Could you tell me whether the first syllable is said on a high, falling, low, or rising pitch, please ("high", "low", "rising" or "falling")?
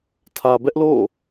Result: low